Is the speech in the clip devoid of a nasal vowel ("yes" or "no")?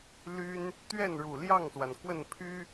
yes